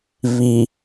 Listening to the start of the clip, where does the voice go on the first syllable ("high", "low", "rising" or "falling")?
low